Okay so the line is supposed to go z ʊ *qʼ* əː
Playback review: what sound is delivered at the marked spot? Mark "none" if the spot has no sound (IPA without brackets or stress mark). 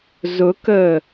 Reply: k